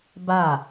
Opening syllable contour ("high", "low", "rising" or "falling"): falling